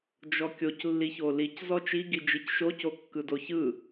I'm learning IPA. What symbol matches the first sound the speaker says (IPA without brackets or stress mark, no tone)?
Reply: d͡ʒ